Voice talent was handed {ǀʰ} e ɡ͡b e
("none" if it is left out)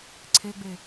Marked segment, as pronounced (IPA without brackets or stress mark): ǀʰ